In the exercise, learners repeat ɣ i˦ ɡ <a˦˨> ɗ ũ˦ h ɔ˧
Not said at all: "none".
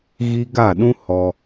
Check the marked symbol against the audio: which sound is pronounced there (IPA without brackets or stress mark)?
a˦˨